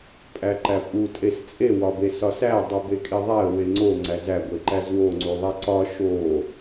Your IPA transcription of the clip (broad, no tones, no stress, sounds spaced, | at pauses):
pʼ æ ǃ æ pʼ u tʼ e s t͡sʼ e w ɒ b e s ɒ s æ dˤ u b e kʼ i ðˤ æ ə̯ w e ŋ͡ǀ o ŋ͡ǀ æ z æ ɡʷ e ǃ æ z w o ŋ͡ǀ u ðˤ i ǀ ɒ ʃ o